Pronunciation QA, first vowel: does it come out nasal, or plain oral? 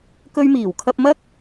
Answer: oral